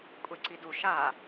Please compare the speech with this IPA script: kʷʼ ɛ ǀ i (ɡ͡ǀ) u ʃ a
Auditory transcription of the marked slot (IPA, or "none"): d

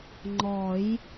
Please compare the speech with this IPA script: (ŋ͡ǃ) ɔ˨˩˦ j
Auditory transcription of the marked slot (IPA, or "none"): ŋ͡ǃ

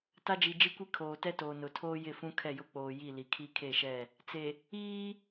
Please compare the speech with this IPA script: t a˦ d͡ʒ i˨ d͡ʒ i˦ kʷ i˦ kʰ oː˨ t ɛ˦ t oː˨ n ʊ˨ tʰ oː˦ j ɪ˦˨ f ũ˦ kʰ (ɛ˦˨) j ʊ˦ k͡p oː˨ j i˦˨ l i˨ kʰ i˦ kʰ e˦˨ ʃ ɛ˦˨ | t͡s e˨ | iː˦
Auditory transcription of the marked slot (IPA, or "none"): ɛ˦˨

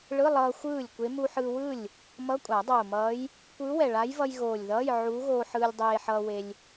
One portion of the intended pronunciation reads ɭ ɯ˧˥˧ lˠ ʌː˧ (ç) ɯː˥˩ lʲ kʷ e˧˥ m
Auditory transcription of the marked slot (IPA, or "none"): xʷ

